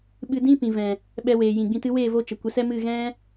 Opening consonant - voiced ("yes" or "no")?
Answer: yes